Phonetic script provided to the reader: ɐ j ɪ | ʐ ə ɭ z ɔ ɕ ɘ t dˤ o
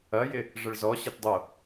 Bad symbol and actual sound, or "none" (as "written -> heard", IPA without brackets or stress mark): none